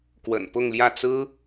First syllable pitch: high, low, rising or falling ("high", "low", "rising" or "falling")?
low